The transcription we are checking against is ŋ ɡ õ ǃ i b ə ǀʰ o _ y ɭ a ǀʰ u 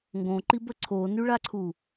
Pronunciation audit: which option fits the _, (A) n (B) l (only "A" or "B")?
A